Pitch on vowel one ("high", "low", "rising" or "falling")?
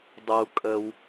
low